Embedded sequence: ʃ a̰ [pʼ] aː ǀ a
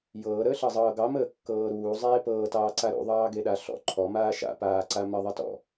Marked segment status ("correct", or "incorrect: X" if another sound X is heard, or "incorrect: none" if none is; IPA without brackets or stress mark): incorrect: p